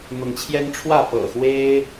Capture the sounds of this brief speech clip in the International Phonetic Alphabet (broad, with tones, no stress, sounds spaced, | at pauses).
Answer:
n̪ ʊ˨˦ ŋ t͡ɕʰ j ɛ˦ n ʈ͡ʂʰ w ä˥˨ p ɤ̰˨˩ x w e˦ ɪ̯